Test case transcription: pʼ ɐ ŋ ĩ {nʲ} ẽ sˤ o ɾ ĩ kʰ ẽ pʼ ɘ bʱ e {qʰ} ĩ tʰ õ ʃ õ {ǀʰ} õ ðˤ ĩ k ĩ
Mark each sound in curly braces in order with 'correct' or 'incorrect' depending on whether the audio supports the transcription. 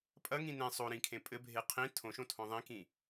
incorrect: n, correct, incorrect: tʰ

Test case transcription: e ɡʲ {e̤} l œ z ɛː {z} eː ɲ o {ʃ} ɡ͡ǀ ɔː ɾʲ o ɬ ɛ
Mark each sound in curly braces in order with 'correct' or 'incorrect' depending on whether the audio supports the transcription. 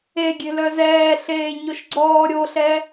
correct, incorrect: ɬ, correct

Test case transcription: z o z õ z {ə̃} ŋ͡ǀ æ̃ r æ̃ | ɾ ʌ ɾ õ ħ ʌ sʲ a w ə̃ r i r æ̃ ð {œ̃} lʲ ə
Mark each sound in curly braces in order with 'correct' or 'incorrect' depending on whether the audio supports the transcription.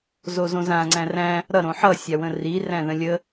incorrect: ã, incorrect: ə̃

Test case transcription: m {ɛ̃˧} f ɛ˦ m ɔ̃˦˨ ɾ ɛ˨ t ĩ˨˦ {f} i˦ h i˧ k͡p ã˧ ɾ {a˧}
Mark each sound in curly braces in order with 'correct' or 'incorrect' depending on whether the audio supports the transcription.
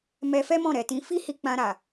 incorrect: ɛ˧, correct, incorrect: a˨

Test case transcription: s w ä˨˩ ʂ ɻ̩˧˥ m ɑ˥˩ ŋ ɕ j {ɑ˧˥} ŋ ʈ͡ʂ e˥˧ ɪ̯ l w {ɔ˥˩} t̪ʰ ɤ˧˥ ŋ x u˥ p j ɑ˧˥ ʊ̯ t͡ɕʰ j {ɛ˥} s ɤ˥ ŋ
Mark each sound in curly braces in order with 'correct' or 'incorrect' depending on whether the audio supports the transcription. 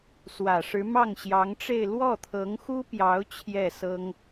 correct, correct, incorrect: ɛ˥˩

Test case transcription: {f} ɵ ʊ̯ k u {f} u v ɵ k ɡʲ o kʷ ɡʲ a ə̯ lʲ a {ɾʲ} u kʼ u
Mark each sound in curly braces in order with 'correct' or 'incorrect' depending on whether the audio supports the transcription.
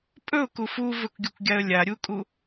incorrect: pʼ, correct, correct

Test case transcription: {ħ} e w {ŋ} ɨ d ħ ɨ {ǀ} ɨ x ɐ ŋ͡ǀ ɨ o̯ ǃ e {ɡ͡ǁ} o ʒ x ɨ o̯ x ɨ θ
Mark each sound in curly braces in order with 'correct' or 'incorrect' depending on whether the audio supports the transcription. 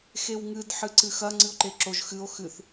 incorrect: x, correct, correct, incorrect: ǁ

